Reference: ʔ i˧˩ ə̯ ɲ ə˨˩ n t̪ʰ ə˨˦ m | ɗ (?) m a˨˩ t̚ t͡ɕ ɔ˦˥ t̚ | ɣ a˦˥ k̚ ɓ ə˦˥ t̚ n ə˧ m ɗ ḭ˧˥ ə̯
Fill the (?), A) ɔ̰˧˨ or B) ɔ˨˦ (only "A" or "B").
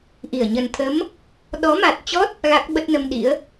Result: B